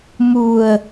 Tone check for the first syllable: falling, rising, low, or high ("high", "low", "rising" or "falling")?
low